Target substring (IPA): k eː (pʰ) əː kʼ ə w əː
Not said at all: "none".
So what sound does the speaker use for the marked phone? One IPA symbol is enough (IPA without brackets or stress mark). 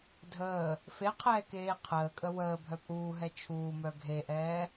qʰ